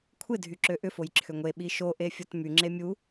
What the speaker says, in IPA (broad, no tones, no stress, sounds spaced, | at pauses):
kʷʰ ɪ dʱ y ǁ ø ʔ ʏ f o j ǁʰ ʏ ŋʷ e ɓ i ʃ o ʔ e fʲ ɔ t m y ŋ͡ǁ e mʲ u